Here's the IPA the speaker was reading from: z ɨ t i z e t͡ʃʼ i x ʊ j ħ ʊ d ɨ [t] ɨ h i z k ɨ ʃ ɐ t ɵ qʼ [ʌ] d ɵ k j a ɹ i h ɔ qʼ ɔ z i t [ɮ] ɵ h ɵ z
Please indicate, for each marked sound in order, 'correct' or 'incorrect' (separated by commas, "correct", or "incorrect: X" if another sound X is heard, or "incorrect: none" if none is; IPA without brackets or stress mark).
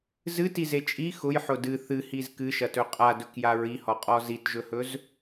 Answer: incorrect: θ, incorrect: a, incorrect: ʒ